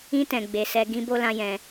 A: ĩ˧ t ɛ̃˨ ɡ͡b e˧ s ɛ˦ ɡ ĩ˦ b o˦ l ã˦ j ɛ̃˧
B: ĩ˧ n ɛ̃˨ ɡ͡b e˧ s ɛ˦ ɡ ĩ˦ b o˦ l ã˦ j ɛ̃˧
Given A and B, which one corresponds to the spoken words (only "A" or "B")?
A